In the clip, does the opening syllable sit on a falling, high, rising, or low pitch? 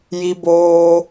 high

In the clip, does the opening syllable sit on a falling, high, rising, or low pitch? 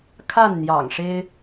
falling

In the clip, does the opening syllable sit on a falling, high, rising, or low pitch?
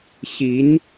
rising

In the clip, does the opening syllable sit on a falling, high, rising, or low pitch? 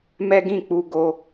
high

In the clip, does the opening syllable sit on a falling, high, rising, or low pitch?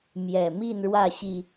low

